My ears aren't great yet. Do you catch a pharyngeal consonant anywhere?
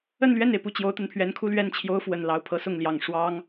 no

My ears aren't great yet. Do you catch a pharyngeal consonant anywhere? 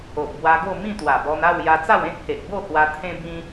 no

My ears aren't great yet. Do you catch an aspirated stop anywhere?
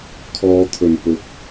yes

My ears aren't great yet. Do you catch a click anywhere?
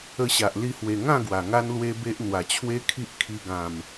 no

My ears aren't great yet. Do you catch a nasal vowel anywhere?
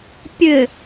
no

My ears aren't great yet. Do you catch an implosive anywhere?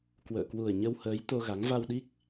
yes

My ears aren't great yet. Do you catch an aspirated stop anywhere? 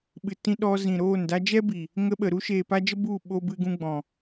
no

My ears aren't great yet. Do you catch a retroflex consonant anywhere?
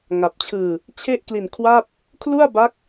no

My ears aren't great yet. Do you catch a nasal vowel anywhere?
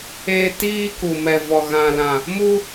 yes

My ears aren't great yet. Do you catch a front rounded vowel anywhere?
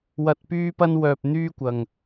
yes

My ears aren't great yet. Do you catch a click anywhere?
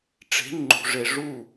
yes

